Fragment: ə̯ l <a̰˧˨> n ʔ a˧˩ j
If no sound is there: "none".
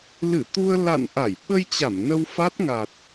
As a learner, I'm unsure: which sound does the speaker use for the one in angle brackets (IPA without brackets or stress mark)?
a̰˧˨